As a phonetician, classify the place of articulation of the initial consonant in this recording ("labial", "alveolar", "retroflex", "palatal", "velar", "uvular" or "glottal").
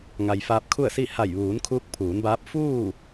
velar